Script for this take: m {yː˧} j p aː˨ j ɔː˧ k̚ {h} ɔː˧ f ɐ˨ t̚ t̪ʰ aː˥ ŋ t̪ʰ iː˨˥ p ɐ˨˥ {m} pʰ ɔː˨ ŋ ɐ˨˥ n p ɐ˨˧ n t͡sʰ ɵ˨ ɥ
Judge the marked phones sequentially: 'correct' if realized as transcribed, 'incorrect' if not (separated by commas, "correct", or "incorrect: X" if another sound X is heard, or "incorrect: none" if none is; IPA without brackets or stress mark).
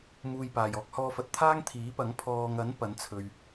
incorrect: uː˧, correct, incorrect: ŋ